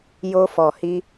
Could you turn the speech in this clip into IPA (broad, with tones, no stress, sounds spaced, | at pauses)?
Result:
j o˧ f ɔ˨ h i˧